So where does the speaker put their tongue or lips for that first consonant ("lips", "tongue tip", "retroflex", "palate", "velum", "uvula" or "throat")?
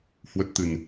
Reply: throat